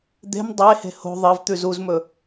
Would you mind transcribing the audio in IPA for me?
d̪ e̤ m dˤ e h e̤ h o̤ ðˤ ɐ v t̪ ʉ z u z m ɵ

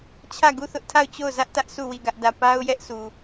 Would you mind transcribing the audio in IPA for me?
t͡ɕʰ ä˦˨ ɡ u˦˨ θ ʊ˦ ʔ tʰ a˦˨ ʊ̯ t͡ɕ o˦˨ ʊ̯ z ä˦ ʔ t ä˦ ʔ sʰ u˦˨ w i˦˨ ɡ ä˦ ʔ d ä˦˨ p a˦ ʊ̯ j ɛ˦ ʔ sʰ u˨

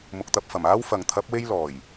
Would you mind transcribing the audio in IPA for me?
m ʊ˨ k̚ t̪ ɐ˧ p̚ f ɐ˨˩ m aː˥ w f ɐ˨ ŋ t̪ʰ ɐ˨˥ p̚ w e˥ j l ɔː˨˩ j

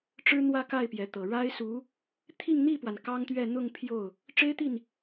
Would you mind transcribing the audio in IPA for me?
ʈ͡ʂ ɻ̩˥ n̪ w ä˥˧ k a˥˩ ɪ̯ p j ɛ˧˥ t̪ ɤ˨˩ ɻ a˥ ɪ̯ s u˧˥ | t̪ʰ i˥˧ ŋ n̪ i˥˩ p w a˩ n k ɑ˥ ŋ t̪ ɥ ɛ˥˧ n̪ ʊ˥˧ ŋ pʰ j o˥˩ ʊ̯ | ʈ͡ʂ e˥ ɪ̯ t̪ i˥˩ n

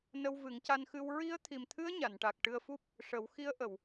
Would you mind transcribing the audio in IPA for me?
n ə˧ w v ɨ˨˩˦ ŋ c a˧ n x ɨ˧ w ɹ i˧˥ ə̯ t̪ʰ i˨˩ m t̪ʰ ɨ˧˥ ə̯ ɲ a˨˩˨ n ʈ a˨˩ k̚ ʈ ɨ˧ ə̯ f u˦˥ p̚ | ʂ ə˨˩˦ w x i˧˥ ə̯ ʔ ə˨˩˨ w

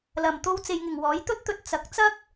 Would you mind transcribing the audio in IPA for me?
l ɐ˨ m t̪ o˥ w t͡s e˧ j ŋ ɪ˨ ŋ w ɔː˨˥ j t̪ ɵ˥ t̚ t̪ ɵ˧ t̚ t͡s ɐ˨˥ k̚ t͡s ɐ˥ k̚

